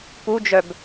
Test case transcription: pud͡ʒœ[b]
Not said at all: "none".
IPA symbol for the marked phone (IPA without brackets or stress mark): b